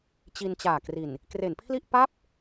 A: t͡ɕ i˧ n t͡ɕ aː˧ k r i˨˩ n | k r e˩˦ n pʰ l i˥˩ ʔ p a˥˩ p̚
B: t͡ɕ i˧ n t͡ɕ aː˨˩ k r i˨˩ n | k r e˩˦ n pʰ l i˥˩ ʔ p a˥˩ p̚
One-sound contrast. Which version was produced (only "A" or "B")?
B